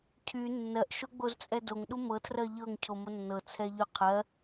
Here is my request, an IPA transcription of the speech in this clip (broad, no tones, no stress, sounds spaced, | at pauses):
cʰ y nː ɜ ʔ ʃ o ɡ͡b o z t͡sʼ ɛ d o ŋ ɗ u m ɤ tʰ r ɜ ʎ ɤ ŋ cʰ o m o nː ɤ t͡sʰ ɛ ʎ ʏ qʰ ɜ